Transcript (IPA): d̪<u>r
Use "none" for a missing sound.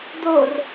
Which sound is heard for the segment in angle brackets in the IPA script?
o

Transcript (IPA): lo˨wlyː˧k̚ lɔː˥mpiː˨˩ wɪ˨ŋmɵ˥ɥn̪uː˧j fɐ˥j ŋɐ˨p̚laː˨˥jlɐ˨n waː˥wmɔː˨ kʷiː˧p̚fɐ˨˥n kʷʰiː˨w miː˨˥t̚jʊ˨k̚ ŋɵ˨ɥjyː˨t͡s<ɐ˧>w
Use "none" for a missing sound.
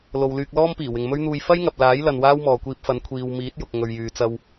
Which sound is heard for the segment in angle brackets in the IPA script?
ɐ˧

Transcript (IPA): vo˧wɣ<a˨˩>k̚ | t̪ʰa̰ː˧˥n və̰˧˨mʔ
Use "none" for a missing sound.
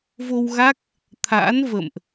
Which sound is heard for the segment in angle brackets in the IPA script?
a˦˥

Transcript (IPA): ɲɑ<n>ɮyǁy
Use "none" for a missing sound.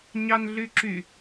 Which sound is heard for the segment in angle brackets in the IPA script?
n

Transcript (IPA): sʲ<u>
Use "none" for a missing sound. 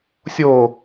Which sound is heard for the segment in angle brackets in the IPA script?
o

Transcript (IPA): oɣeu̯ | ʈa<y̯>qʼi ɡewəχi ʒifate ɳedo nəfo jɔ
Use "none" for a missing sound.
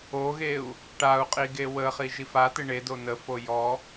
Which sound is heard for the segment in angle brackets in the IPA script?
u̯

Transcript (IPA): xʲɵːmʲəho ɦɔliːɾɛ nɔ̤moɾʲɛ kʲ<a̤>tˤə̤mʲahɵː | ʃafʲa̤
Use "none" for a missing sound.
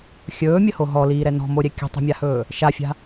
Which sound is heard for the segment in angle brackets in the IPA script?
ə̤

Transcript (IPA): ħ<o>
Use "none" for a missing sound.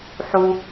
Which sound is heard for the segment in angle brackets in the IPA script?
u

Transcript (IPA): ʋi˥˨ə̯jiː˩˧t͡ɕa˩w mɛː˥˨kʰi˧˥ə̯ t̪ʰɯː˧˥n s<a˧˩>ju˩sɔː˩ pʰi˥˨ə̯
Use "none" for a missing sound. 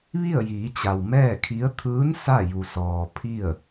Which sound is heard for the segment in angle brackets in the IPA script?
a˥˨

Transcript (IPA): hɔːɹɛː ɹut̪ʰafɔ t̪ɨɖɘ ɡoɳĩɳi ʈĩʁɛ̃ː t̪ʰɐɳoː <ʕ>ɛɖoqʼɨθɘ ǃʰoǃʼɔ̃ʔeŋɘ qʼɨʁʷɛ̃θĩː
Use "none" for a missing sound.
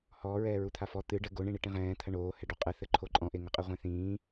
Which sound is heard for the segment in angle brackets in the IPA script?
h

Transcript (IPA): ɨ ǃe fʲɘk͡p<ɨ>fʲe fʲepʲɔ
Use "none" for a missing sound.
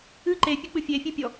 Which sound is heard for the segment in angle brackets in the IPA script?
ɨ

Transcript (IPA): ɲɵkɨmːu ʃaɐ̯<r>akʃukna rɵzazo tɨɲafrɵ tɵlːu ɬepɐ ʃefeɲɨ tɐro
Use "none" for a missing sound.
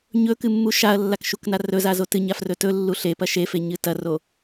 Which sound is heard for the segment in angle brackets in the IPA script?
lː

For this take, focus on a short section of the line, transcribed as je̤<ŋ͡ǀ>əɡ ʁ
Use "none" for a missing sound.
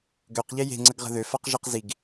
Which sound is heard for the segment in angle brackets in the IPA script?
ŋ͡ǀ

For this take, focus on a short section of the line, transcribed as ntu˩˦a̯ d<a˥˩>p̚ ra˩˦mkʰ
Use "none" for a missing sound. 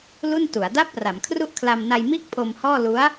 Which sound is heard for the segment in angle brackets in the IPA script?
a˦˥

